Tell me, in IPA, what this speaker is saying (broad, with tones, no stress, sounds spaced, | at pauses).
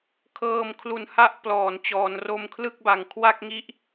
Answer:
kʰ ɤː˧ m kʰ l u˨˩ n h a˥˩ ʔ p l ɔː˩˦ n t͡ɕ ɔː˩˦ n r o˧ m kʰ l ɯ˥˩ k̚ b a˨˩ ŋ kʰ w a˥˩ k̚ ŋ i˦˥ ʔ